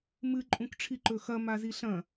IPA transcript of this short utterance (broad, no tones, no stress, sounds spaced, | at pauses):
m ɨ ǃʼ ũ k ʈ͡ʂʰ i ǃ ɵ x ɐ m a z i ɬ ɐ̃